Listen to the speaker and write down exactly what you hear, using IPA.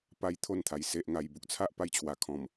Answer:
p a˦ j t̪ʰ o˥˧ n t̪ʰ a˨˩ j s e˨ ʔ ŋ a˨˩ j b u˨ k̚ t͡sʰ a˦ ʔ p a˦ j t͡ɕʰ w a˨˩ kʰ ɔ̃˨˩ m

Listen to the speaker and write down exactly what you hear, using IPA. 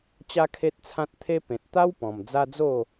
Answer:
t͡ɕ a˦ kʰ e˦ t̚ t͡sʰ ã˦ t̚ t̪ʰ e˦ p ẽ˨ t̚ t̪ a˦ w p ɔ̃˨˩ m d͡z a˦ d͡z o˥˧

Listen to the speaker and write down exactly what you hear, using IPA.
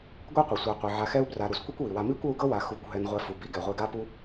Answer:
ɡʷ ɛ˥ qʷ i˩ sʷ a˨ qʷ i˩ ʕ a˨ x ɛ˦ u̯ b r a˨ ɾ u˩ s kʷ i˥ kʷ w i˩ w a˨ m i˥ kʷ ɤ˦ u̯ ɡ ɤ˥ w a˨ x u˨ kʷ ɦ ɛ˨ n ʁʷ ɛ˨ f u˩ b i˥ ɡ ɛ˩ ʁʷ i˨ ɡ a˥ p u˥

